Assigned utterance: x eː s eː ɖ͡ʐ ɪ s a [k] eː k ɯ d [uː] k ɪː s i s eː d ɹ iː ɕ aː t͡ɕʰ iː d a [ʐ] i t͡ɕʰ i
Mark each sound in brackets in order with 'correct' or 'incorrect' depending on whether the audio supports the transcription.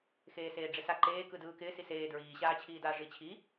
incorrect: ǃ, incorrect: ɯː, correct

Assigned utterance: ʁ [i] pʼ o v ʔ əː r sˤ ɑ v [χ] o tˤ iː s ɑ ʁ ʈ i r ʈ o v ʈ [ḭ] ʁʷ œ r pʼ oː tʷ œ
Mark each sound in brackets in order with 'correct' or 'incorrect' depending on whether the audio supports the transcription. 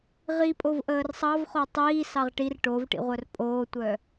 correct, correct, correct

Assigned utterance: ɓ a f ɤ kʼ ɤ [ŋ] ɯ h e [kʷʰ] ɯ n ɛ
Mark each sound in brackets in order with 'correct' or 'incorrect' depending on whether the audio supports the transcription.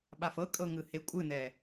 correct, incorrect: kʷʼ

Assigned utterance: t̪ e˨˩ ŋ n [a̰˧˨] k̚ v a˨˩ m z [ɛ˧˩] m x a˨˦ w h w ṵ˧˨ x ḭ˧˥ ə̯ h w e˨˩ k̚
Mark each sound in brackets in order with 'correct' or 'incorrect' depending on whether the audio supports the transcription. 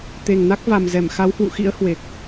incorrect: a˦˥, correct

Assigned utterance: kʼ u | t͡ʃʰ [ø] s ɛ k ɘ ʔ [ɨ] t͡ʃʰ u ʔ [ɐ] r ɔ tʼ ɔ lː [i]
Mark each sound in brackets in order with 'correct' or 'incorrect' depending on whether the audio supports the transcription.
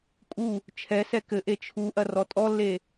incorrect: ɛ, incorrect: e, correct, incorrect: e

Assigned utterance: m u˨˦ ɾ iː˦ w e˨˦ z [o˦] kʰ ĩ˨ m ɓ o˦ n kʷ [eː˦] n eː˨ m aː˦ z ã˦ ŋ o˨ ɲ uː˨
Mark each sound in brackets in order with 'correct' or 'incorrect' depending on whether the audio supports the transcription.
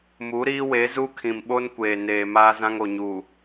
incorrect: u˦, incorrect: eː˨

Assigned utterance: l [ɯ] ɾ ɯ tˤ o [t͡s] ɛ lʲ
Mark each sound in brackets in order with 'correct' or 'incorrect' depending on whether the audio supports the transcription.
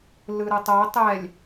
correct, incorrect: tˤ

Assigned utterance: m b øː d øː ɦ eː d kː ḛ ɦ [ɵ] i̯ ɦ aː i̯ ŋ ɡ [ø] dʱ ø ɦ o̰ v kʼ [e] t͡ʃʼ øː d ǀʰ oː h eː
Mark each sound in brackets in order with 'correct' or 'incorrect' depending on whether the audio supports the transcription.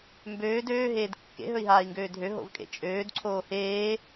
correct, incorrect: øː, incorrect: ḛ

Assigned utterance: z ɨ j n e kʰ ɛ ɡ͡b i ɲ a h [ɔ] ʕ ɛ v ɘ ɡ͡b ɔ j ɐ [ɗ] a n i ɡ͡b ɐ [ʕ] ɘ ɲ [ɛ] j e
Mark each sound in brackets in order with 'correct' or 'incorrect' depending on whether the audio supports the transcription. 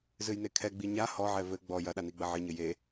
correct, correct, correct, incorrect: ɘ

